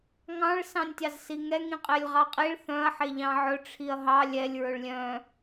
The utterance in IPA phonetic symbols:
ŋ ɑ̃ ɭ s ɑ̃ nʲ tʲ ɑ z s i ŋ ɛ ŋ ĩ qʼ e lʲ ʁ ɑ qʼ i ɭ θ œ̃ ɐ̯ ħ e ʎ ɑ̃ ʕ ɵ ʈ͡ʂʰ i ɐ̯ ɦ ɑ lʲ ɛ lʲ ɹ ɵ ɭ lʲ œ̃

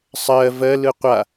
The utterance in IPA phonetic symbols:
sˤ ɜ v ɜ l ɯ qʷ a

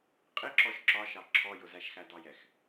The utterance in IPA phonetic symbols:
qʼ ɪ ǁ ɔ ʃ ǁ ɒ ʃ ɑ ǁʰ ɔ j ʊ z æ ʃ x æ d ɑ j ɛ x

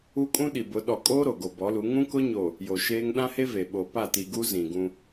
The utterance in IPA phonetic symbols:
u˦ kʼ ũ˦ ɗ i˨ b ʊ˨˦ ɗ ɔ˨ kʼ oː˦ ɾ o˨ ɡ o˨ b ɔ˨˦ l u˨˦ ŋ ũ˦ k ʊ˦ ɲ o˨ | j o˨ ʃ eː˦ ŋ ɗ ã˦ h e˦ v e˨ ɓ o˨ p a˦˨ t i˨ ɡ u˦ z ĩ˨ ɡ ũ˦

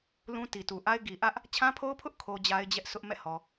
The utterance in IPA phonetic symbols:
l ũ˦ t i˨ t u˨ ʔ a˦ ɪ̯ ɡ i˨ ʔ ä˦ ʔ | t͡ɕʰ ã˦ pʰ o˦ ʊ̯ pʰ ʊ˦ ʔ kʰ o˦ d͡ʑ a˦ ɪ̯ d͡ʑ ɛ˦ ʔ s ʊ˦ ʔ m ɛ̰˦˨ h ɔ˨

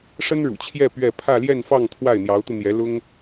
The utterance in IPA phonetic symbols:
ʂ ə˥ n ɻ ṵ˨˩ t͡ɕʰ j ɛ˥˧ p ɥ ɛ˥˧ pʰ ä˥˧ l j ɛ˥˧ n f ɑ˥˧ ŋ t̪ʰ w a˥˩ ɪ̯ n̪ j ɑ˧˥ ʊ̯ t̪ u˧ n̪ j ɛ˧˥ l ʊ˥ ŋ

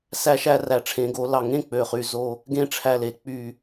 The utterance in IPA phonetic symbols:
s æ˧ ʃ æ˧ r æ˨˩ ʈ͡ʂʰ ẽ˩˧ ɡ o˩˧ l ɑ˨˩ ŋ ẽ˥˨ k͡p ø˨˩ χ y˨˩ z o˥˨ | ɡ ẽ˥˨ ʈ͡ʂʰ æ˧ l e˩˧ k͡p y˨˩

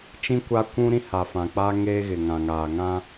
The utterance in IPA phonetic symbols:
t͡ʃ ĩ˦ kʷ a˦ kʷ ũ˦ ɾ ĩ˦ h a˨ f ã˨ k͡p a˦ ŋ eː˦ ɣ ɪ˨ ŋ ã˨ ŋ aː˨ ŋ ã˦

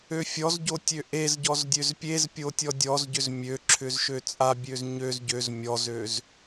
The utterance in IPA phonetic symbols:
ø fʲ ɔ z ɟ o tʲ ø ʔ e z ɟ ɔ z dʲ ø z pʲ e z pʲ o tʲ ɔ dʲ ɔ z ɟ ʏ z mʲ ø ǁʰ ʏ z ʃ ø t͡sʼ a bʲ ø z ɲ ø z ɟ ø z mʲ ɔ z ø z

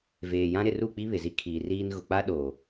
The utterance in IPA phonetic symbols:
v eː˨ j ã˦ ɾ ɪ˨ r u˦˨ k͡p i˦ β ɪ˨ z i˦ kʰ iː˨ r iː˦ n ɣ ʊ˨ k͡p a˦ ɗ oː˨

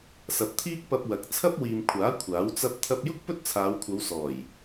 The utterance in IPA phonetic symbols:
s ɐ˨ p̚ t̪ʰ iː˥ k̚ p ɐ˧ p̚ w ɐ˨˥ k̚ t͡sʰ ɐ˥ p̚ w iː˨ m kʷʰ aː˨˥ kʷʰ aː˨˥ w t͡s ɐ˥ p̚ t̪ʰ ɐ˧ p̚ j ʊ˥ k̚ p ɵ˥ t̚ t͡sʰ aː˨˧ w kʷʰ ɐ˨˧ w s ɔː˨˩ j

